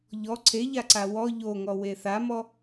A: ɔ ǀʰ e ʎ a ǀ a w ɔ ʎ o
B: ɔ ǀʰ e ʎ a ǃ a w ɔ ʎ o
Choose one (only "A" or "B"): A